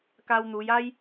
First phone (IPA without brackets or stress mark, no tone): k